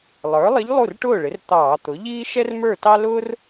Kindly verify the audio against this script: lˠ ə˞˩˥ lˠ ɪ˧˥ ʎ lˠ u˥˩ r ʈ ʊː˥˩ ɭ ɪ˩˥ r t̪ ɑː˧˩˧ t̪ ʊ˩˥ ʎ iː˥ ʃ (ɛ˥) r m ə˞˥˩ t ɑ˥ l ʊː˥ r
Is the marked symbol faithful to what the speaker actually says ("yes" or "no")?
yes